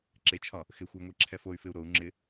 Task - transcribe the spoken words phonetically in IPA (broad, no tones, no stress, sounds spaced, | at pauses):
ǁ e t͡ʃʰ ɒ | x ɪ xʷ ə y̯ ŋʷ ɛ ǁʰ ɛ f o y̯ f ɪ u̯ ɾ o u̯ ŋ͡ǁ ɪ